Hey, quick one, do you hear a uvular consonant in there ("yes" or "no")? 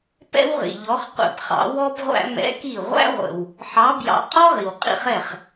yes